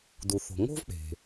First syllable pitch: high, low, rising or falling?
low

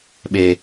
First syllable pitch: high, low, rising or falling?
low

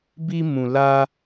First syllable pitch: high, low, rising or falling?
high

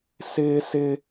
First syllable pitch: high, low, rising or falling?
high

